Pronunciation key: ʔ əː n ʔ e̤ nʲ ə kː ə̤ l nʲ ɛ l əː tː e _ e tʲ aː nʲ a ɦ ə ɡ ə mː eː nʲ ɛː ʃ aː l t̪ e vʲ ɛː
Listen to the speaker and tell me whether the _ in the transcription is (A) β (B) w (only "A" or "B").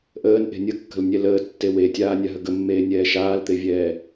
B